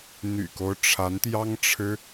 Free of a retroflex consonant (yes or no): no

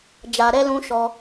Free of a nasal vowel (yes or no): no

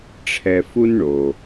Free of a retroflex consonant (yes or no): no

